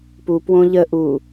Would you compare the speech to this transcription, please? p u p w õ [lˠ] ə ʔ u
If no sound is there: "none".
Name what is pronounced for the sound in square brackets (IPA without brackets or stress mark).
ʎ